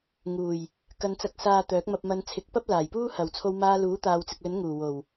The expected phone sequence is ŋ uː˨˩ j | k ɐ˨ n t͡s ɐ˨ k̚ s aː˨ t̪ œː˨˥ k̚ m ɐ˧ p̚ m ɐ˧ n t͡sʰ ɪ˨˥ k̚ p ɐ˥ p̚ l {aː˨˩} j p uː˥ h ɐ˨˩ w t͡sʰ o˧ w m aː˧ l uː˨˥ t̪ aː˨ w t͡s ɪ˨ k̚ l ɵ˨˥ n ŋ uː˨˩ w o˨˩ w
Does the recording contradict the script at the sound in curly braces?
no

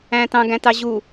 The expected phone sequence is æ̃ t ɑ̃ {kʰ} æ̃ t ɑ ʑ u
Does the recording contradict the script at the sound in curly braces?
yes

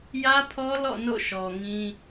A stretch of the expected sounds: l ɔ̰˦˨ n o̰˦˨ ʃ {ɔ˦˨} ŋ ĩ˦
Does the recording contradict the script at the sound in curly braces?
yes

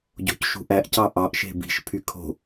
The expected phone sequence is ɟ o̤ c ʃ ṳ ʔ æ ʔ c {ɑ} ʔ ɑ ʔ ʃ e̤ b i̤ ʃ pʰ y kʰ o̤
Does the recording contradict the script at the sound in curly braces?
no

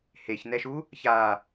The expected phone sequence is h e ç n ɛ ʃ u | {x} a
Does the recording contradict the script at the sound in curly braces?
yes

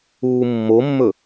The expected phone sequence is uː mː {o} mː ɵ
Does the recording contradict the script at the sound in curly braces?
no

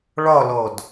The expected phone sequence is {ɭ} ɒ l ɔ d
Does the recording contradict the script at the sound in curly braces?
no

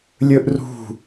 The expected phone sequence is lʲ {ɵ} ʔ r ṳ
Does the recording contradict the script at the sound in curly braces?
no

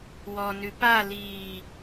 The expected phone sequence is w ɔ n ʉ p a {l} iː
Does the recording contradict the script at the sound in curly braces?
no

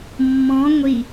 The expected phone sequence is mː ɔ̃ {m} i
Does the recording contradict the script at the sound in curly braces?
yes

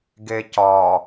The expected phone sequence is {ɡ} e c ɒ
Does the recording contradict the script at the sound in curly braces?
no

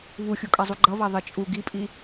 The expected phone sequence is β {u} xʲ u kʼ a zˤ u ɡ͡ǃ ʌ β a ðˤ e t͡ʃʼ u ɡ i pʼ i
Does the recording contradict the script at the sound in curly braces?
no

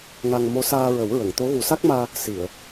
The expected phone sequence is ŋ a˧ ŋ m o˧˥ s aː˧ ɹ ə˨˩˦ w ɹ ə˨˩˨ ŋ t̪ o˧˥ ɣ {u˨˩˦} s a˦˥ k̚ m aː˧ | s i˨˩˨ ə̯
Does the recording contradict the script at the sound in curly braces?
no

